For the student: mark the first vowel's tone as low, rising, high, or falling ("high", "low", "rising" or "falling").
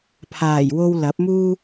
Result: low